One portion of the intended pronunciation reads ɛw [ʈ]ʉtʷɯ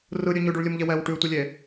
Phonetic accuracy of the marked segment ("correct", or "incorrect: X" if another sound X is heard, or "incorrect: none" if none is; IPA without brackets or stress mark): correct